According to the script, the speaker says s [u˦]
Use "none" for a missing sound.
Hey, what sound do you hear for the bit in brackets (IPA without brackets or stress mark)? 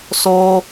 o˦